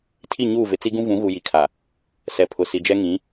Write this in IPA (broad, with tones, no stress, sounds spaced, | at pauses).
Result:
tʰ i˦˨ ɲ uː˦˨ v ɪ˨ t͡s i˦ ɡ ũ˦ v ũ˨˦ ɣ u˨ j i˨ kʰ a˨ | s ɛ˨ pʰ ʊ˨ s i˨ d͡ʒ ɛ˦ ŋ ĩ˨˦